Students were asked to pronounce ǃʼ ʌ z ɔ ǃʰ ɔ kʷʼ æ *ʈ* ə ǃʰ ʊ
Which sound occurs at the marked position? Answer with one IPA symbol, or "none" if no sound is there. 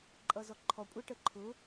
ʈ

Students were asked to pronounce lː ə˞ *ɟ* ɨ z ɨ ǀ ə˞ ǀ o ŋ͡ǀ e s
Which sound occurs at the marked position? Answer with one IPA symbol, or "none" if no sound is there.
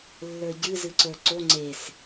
ɟ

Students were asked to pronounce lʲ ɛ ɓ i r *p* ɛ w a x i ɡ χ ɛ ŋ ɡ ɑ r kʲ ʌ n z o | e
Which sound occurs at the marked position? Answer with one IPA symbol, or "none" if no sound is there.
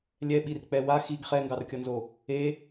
k͡p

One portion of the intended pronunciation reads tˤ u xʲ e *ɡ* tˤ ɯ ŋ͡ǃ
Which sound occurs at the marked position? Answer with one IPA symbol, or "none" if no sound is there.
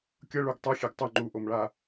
ɡ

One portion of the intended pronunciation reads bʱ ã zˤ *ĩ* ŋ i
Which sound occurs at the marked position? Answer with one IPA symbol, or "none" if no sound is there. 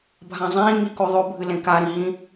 ĩː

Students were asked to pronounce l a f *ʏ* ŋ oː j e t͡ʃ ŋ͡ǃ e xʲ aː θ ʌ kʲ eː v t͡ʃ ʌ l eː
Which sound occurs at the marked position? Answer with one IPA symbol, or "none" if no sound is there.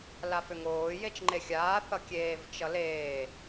ʏ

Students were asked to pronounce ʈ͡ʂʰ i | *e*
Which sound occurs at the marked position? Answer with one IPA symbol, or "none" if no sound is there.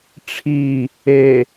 e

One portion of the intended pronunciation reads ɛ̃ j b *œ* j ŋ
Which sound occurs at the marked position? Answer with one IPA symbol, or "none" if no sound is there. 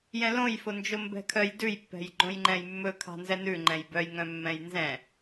œ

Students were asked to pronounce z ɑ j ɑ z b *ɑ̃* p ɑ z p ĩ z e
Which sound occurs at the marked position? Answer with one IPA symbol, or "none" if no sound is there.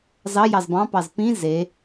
ɑ̃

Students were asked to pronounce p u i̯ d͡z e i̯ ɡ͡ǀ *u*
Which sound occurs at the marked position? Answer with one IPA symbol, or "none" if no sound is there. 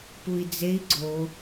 o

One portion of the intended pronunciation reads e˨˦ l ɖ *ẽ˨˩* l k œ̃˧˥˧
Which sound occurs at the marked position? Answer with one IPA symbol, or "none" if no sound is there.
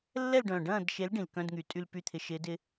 ĩ˨˩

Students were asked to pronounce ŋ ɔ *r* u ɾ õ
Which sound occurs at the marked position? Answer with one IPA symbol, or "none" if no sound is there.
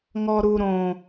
ɾ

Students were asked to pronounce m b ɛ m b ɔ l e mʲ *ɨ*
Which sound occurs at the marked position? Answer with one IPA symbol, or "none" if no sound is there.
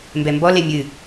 ɨ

